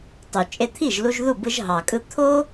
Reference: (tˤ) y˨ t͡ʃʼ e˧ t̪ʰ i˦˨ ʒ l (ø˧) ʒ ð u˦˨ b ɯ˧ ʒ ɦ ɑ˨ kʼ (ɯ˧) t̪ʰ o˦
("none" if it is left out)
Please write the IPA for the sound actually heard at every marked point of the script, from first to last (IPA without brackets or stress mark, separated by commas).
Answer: tˤ, u˧, ɯ˧